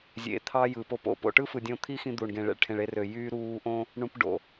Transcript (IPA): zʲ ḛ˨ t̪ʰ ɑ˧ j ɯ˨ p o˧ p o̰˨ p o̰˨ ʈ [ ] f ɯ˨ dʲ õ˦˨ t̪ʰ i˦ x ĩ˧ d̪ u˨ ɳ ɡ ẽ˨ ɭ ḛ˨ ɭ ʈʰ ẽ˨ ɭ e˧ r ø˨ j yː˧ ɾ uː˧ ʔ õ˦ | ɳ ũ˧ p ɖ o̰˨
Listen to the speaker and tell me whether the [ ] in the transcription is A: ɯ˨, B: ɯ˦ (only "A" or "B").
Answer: B